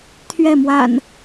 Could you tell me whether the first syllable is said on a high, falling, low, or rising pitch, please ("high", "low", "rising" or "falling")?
falling